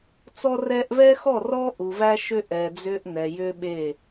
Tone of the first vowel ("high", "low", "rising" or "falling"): high